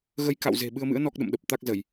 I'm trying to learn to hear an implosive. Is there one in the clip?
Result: yes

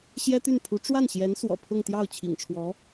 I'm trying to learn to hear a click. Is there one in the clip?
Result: no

